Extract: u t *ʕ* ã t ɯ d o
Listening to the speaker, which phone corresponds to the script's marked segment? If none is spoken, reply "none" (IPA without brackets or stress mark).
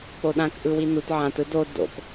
ʕ